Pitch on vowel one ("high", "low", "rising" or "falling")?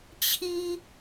high